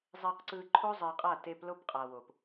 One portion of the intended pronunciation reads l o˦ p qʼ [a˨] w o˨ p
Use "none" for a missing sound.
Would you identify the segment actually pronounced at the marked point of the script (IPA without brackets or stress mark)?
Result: a˨